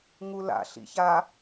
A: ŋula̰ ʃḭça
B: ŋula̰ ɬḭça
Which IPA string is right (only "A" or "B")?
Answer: B